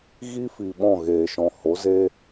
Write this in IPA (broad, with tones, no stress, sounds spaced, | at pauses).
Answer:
ɣ i˦ f i˨ ɓ ɔ̃˦˨ ɣ eː˨ ʃ ɔ̃˨ h o˨˦ z eː˦